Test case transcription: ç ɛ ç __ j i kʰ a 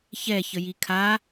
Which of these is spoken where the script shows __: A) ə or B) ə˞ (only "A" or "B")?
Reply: A